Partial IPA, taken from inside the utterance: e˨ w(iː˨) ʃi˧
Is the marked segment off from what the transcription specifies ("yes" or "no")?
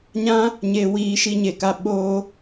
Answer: no